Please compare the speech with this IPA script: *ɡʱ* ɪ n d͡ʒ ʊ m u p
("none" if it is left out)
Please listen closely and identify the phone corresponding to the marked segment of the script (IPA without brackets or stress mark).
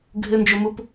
ɡʱ